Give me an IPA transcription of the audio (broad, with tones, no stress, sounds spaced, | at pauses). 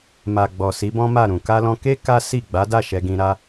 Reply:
m a˨ ɡ͡b ɔ˨ s i˨˦ b ɔ̃˦ m a˦˨ ɾ ũ˨ k a˧ l ɔ̃˧ k e˦ k a˦ s i˦˨ ɡ͡b a˨˦ d a˦˨ ʃ ɛ˧ ɡ ĩ˧ ɾ a˦